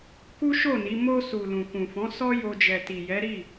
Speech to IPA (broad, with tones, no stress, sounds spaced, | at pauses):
k u˦ ʃ o˦˨ n i˨˦ m o˧ s u˨ l ũ˨ k ũ˨ f ɔ̃˨˦ s ɔ˦ j o˧ d͡ʒ ɛ˨ t i˨ j ɛ˨˦ ɾ i˦˨